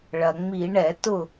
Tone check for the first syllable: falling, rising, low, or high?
low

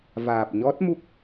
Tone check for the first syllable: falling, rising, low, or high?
low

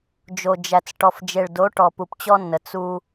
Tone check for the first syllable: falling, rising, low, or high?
low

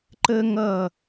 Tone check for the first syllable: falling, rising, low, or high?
high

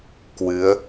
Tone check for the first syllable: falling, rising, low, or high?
rising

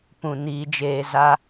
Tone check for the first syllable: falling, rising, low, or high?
low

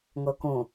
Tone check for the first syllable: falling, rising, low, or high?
low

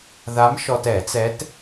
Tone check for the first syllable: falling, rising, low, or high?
rising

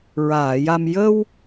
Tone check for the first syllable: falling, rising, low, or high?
low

